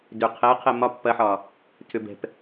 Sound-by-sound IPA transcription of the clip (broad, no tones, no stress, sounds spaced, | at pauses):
d ʏ qʰ ɛ qʰ ɛ m ɒ pː ɐ ħ ɒː | tʰ ʏ b ɛ̤ p